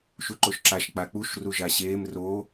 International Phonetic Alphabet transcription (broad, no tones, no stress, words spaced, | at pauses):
ʃuǃoʃǁaʃ k͡pak͡puʃ ruʒaɕeːm roː